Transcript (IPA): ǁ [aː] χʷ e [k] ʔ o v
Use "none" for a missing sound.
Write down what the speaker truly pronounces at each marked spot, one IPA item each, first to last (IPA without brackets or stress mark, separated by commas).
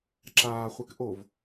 aː, k